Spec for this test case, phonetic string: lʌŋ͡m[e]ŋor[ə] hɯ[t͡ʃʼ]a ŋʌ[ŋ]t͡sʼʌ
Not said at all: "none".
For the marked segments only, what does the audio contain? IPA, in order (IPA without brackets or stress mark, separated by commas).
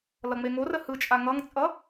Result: e, ə, t͡ʃʼ, ŋ